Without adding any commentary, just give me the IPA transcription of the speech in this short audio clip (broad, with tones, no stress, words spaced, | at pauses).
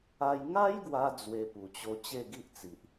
a˦j ŋa˦jɡwa˧ d͡zwe˧pu˨˩t͡ɕo˧ t͡ɕe˥˧ɡi˦ʔt͡si˨ʔ